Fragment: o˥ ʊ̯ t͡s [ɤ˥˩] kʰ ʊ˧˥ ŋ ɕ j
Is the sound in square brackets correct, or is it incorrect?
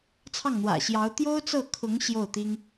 correct